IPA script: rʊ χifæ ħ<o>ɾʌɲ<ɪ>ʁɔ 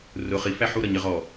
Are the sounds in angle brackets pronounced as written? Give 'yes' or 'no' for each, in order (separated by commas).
no, yes